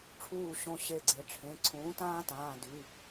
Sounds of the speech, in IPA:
ʈ͡ʂʰ uː˧˩ ɕ õ˧˩ ɕ e˧˩ ɡ͡ǀ e˩˥ ʈ͡ʂʰ ẽ˩˧˩ ǀʰ ũː˩˥ t ãː˦ t ãː˩˧˩ d y˩˧˩

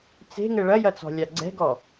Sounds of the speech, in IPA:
t͡s e̤ ŋ ɘ ɭ ɐ j ɐ t͡s ɔ̤ lʲ a ɡ͡ǀ ɛ̤ ɡ ɔ

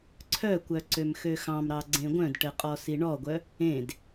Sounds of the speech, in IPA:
ǀʰ œ kʷ œ ǀ ø m x ø x ɑ̃ m ɾ ɑ ɡ͡ǀ ẽ ɡʷ œ̃ d ʈ ɘ qʼ ɔ s i ɳ ɔ ɡʷ œ | ẽ d

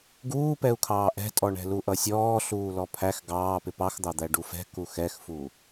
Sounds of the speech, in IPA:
ɡ uː p ɛ u̯ kʰ ɑː ʔ ɛ̤ tʼ ɔ ɳ ɛ̤ l u ʔ ʌ sʲ ɔː ɬ uː l ɔ pʰ æ x ɡ ɑː p ɪ p ɑ x d̪ ɑ d̪ æ ɖ u f ɛ̤ k u x ɛ x f u

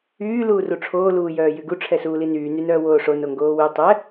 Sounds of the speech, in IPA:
yː l uː r u ʈ͡ʂʰ oː l uː j œː j y ɡ u ʈ͡ʂʰ ɛ s uː l i n yː n y n œː w oː ʂ o n o ŋ ɡ oː w y tˤ ɛ

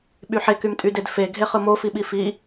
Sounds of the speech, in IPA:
ɓ y ħ e k y m tʼ y d e d f e ɡʱ e χ ɯ m o f i ɓ i f i

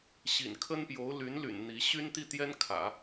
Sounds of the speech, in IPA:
ɕ ḭ˨˩ n kʰ ə˥ n p j o˧˥ ʊ̯ l y˧˥ n l y̰˨˩ n n̪ i˧˥ ɕ y˥ n t̪ i˥˩ t̪ j ɛ˥ n kʰ ä̰˨˩˦

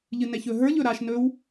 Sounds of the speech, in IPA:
ʎ ɨ n ɛ ç ɵ ɦ ə˞ ʎ ɵ ɾ a ʃ n ɵ w

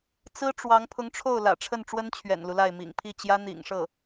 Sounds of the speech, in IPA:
t͡s ɹ̩˥ ʈ͡ʂ w ɑ˧˥ ŋ pʰ ʊ˧˥ ŋ ʈ͡ʂʰ o˥˩ ʊ̯ l ä̰˨˩ ʈ͡ʂʰ ə˥˩ n ʈ͡ʂ w ə˥ n t͡ɕʰ ɥ ɛ̰˨˩ n l u˦ l a˥˩ ɪ̯ m ḭ˨˩ ŋ pʰ i˥˩ t͡ɕ j ä˥ n̪ ḭ˨˩ ŋ ʂ ɤ˥˩

